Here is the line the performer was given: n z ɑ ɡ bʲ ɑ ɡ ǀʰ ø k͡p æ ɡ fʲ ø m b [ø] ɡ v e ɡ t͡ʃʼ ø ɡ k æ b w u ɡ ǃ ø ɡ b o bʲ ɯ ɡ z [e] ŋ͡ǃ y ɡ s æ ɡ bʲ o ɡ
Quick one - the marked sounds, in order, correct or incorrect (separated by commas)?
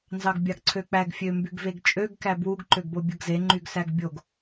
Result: incorrect, correct